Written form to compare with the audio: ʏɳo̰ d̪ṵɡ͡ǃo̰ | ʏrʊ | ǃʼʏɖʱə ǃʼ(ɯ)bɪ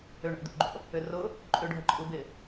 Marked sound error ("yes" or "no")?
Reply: yes